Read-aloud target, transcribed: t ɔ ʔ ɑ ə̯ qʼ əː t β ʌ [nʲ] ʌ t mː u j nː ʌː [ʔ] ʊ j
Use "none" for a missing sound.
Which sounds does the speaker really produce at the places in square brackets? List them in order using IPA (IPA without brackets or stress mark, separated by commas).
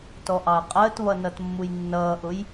n, ʔ